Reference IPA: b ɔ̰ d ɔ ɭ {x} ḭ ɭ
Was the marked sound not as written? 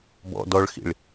no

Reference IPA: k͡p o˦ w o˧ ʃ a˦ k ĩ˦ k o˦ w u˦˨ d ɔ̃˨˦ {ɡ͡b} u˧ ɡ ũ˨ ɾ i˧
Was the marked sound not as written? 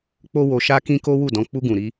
yes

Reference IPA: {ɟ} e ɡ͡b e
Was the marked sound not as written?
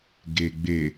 yes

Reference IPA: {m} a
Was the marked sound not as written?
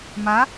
no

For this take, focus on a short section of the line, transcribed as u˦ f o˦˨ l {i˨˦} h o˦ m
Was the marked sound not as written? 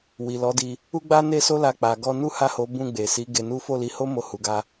no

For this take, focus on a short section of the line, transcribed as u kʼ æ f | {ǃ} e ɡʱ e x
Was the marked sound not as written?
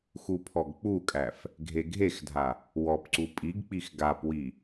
yes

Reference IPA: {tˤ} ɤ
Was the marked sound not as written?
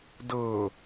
yes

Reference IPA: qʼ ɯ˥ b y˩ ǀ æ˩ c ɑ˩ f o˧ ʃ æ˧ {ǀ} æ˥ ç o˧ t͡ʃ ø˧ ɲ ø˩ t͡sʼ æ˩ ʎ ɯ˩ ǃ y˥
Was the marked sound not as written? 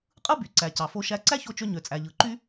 no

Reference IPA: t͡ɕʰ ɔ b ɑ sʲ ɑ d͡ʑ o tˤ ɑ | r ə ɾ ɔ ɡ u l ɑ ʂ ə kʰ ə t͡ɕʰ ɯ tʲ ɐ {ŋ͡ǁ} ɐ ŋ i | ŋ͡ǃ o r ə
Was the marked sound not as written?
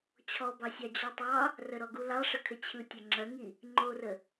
no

